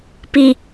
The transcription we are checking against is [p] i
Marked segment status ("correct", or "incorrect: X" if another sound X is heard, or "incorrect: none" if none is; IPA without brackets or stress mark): correct